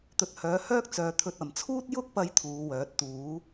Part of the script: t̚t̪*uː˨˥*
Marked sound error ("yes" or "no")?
no